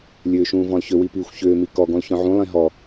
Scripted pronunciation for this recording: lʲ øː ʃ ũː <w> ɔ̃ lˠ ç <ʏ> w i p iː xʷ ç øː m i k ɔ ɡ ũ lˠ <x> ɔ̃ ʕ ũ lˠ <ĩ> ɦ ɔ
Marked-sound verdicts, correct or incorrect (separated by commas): incorrect, correct, incorrect, correct